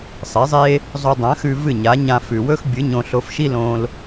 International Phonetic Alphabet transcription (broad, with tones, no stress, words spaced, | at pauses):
sˤe˩˥zˤe˥ | zˤo˧dˤã˩˥xʉ˧ vɨ˥˩ɲa˩˥ɲã˧ fʉ˩wɵ˥xbʲɨ˩˥ ɲõ˧ɬo˧fʃi˥ lõ˧l